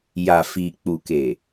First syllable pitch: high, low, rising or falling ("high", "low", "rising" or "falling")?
low